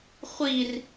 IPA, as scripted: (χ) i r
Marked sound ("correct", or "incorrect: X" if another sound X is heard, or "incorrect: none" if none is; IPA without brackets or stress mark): incorrect: χʷ